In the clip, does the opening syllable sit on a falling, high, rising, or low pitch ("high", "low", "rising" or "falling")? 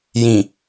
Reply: low